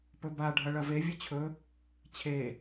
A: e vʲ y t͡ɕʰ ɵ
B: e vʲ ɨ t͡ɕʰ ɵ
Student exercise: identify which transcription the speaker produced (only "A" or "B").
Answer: B